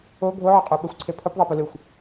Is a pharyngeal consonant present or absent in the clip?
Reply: present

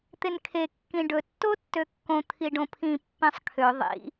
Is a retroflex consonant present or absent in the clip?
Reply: present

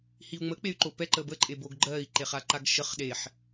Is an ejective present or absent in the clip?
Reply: present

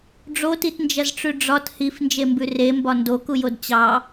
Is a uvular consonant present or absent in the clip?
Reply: absent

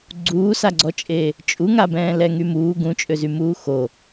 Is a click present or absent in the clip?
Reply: present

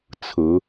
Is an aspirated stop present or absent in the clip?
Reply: present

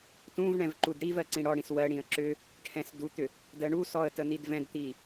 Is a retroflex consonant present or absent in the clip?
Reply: present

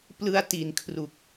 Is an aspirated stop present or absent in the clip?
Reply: present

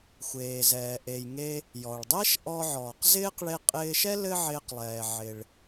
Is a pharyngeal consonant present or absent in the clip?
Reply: present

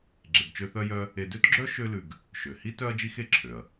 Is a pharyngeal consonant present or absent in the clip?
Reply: absent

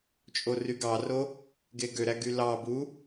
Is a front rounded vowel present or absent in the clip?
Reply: present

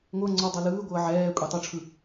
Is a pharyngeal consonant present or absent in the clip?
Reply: present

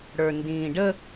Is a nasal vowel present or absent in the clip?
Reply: present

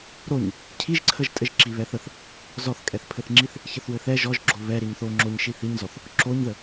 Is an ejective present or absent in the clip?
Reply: present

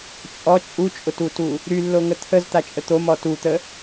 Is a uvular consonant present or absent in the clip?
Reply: absent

